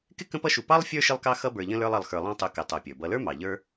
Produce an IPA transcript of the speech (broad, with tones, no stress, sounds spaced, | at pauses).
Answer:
k ɪ˥ k ə̃˦ p ʌ˦ ʃ u˨ p ɑ˥ lˠ fʲ ə˞˥ ʃ ɪ˦ lˠ k ɑ˦ x ʌ˦ b ə˞˨ ʎ ə̃˦ l ə˞˦ lˠ ʌ˨ lˠ x ə˞˨ lˠ ɑ̃˦ tˤ u˨ k ɪ˨ tˤ ə˞˨ pʲ ə˞˩ b ʌ˨ l ə˞˥ m ɑ˩ ʎ ə˞˦